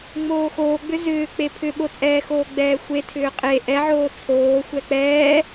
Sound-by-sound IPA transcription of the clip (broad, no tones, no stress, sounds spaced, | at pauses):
ŋ͡m oː x oː ɡ͡b ʏ z ʏː k͡p e pʰ ʏ ɓ o t͡sʼ ɛː x oː ɡ͡b ɛː xʷ e tʰ ʏː qʼ e ʔ ɛ ʕ oː t͡sʰ oː xʷ ɛ k͡p ɛː